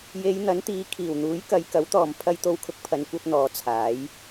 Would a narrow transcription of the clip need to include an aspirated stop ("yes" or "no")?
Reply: yes